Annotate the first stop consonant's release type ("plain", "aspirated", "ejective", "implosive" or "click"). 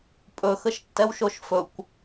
ejective